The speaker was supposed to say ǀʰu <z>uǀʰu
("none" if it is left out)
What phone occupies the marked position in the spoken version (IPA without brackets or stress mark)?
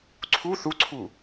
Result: θ